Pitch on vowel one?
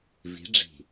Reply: rising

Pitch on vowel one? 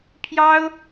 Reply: high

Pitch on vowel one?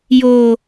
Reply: low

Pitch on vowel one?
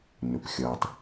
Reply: low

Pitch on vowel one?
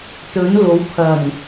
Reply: rising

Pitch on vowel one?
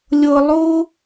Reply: high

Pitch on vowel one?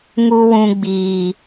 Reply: high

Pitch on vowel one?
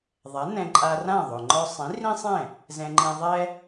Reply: rising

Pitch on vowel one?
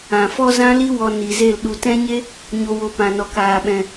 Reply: low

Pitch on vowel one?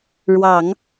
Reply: low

